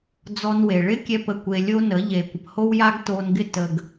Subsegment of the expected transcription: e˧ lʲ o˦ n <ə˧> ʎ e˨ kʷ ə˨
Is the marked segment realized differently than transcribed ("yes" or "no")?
yes